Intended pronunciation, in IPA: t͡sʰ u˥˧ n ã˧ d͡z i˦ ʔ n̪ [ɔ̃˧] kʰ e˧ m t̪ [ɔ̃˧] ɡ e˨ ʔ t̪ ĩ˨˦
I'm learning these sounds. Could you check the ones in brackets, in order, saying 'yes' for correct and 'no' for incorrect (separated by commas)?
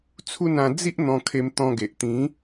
yes, yes